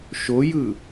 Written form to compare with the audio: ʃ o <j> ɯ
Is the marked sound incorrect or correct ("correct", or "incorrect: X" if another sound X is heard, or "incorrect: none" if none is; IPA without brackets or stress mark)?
correct